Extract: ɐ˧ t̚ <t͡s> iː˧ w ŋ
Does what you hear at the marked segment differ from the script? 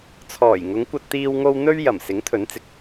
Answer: yes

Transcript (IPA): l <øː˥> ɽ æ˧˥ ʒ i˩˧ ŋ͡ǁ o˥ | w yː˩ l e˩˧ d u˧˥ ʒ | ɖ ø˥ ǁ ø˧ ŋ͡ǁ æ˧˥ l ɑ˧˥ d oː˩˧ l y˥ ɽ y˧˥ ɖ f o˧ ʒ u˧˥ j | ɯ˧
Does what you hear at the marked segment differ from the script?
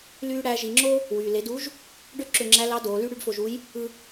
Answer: yes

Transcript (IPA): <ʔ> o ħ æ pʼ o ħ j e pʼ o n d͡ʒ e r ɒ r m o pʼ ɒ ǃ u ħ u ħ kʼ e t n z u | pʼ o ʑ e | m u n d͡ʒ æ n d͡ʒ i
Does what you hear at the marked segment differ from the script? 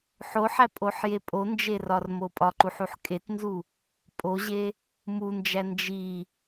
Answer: yes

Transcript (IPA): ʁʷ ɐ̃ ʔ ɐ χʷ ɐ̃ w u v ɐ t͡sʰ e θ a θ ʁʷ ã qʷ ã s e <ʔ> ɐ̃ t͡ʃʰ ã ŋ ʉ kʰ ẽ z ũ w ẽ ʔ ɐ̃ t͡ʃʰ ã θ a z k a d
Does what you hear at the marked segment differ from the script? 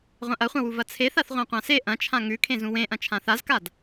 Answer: no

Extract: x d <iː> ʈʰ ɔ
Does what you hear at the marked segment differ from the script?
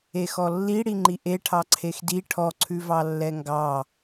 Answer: yes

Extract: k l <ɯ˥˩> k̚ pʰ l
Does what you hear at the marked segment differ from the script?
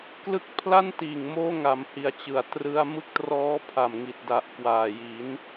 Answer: no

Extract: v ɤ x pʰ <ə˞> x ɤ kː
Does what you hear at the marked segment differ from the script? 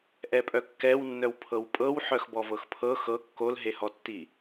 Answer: yes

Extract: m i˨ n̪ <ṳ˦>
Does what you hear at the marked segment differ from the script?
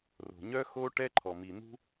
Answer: no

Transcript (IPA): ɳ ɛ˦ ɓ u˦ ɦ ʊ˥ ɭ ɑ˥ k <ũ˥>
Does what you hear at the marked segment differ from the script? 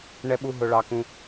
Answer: no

